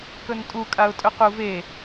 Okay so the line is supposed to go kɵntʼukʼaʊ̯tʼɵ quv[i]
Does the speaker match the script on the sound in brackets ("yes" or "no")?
no